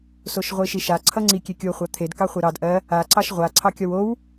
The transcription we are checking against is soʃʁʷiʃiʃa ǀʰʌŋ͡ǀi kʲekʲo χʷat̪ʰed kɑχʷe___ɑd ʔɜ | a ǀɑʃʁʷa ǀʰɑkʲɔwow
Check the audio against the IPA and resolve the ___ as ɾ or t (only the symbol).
ɾ